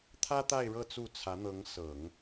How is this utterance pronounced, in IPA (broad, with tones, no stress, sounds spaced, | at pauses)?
t̪ʰ ä˥ t̪ a˥˧ ɪ̯ ɻ ɤ˥˧ t͡s u˥˩ t͡sʰ ä˧˥ n̪ ɤ˧˥ ŋ s ɤ˨˩˦ ŋ